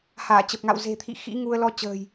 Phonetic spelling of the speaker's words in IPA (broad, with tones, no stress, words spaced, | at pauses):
haː˧˩t͡ɕə˨˩p̚ŋa̰˧˨w ze̤˨˩t̪ʰḭ˧˨ xḭ˧˥ŋu˧ə̯ lɔ˧ t͡ɕə̤ː˨˩j